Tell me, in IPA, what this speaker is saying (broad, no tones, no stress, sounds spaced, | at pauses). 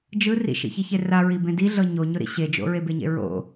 d͡ʒ ɯ r ḭ ʃ ḭ ç i ç e r a ɹ i b ẽ d i ɮ ɤ ɲ o ɲ ʊ ɾ ḭ ɕ e d͡ʒ o̰ ɹ e b e ɲ ḛ ɹ o̰